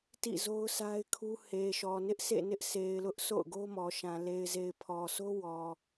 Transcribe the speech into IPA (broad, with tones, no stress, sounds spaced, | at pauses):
t ḭ˦˨ z o˦ ʊ̯ sʰ a˦ ɪ̯ kʰ u˦ h e˨ ʃ ɔ˨ n ɪ˦ ʔ sʰ ḛ˦˨ n ɪ˦ ʔ sʰ e˨ ɪ̯ l ʊ˦ ʔ sʰ o̰˦˨ ʊ̯ ɡ o˦ m ɔ˨ ʃ ã˨ l e˨ ɪ̯ z e˨ ɪ̯ pʰ ɔ˨ sʰ o˦ w ɔ˨